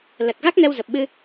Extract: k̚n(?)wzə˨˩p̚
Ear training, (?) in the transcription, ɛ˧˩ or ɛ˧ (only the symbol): ɛ˧